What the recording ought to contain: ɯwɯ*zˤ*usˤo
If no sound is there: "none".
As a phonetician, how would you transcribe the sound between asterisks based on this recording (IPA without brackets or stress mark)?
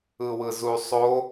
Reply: z